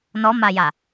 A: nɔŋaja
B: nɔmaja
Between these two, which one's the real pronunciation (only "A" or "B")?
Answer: B